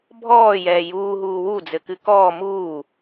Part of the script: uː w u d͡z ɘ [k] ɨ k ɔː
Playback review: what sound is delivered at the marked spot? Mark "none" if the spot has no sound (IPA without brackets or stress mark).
k